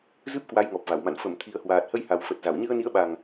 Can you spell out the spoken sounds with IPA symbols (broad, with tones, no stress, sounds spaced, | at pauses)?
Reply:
z ɨ˦˥ p̚ k w a˨˦ j ŋ ɔ˨˩ p̚ v a˧˩ w m a̰˧˨ n f ə˧˩ m t̪ʰ i˨˩ ə̯ h w aː˨˩ t̚ h ə˧ j h a˨˩ w f ə˨˩ t̚ z a˧˩ w ɲ ɨ˧ ə̯ n i˨˦ ə̯ ɓ a˨˩ ŋ